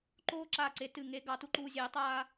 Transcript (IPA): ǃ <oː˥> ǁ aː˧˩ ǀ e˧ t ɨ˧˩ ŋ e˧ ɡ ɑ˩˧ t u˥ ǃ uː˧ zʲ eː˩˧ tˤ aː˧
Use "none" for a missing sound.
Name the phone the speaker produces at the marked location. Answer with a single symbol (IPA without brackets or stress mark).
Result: oː˥